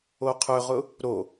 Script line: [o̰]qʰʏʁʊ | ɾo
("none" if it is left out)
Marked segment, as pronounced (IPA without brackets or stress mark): o